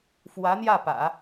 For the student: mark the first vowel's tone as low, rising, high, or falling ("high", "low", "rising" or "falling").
rising